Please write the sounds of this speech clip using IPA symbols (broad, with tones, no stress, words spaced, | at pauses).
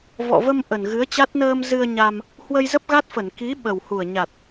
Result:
vɔ̰˧˨və˧m ʔə˨˩n ɣɨ˨˦ə̯t͡ɕa˦˥t̚ nəː˧mzɨ˧ə̯ɲa˧m | hwə˧jzə˦˥p̚ɣa˦˥t̚fə˧˩n ki˨˦ ɓə˨˩whu˨˩ə̯ ɲa˨˩t̚